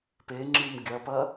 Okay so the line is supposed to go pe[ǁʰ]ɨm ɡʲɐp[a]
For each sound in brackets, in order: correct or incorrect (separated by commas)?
incorrect, incorrect